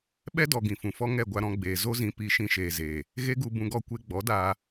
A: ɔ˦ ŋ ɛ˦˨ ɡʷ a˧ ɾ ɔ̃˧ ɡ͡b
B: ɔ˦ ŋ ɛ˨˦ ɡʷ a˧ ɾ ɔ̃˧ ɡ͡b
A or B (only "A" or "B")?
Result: A